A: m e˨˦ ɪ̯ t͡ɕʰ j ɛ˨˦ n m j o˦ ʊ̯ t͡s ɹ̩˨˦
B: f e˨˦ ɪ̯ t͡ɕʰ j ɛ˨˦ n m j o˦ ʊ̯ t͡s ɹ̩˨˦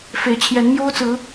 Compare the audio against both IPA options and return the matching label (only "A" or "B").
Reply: B